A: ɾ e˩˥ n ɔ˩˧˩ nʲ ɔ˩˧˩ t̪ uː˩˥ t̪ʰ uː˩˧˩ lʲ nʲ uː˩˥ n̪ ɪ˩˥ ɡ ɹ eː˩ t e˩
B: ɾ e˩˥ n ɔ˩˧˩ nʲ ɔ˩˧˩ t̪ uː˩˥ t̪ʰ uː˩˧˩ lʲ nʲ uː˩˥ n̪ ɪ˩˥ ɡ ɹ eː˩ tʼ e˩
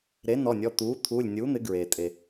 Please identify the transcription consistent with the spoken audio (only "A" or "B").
B